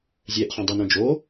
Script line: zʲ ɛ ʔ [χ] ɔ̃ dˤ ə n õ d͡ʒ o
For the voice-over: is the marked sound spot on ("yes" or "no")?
yes